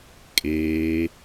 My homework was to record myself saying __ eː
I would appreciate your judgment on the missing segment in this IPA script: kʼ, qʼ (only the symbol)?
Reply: kʼ